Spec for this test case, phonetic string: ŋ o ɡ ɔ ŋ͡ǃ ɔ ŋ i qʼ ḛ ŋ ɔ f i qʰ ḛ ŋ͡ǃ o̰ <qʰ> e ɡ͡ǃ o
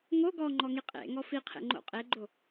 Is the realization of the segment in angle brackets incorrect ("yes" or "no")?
yes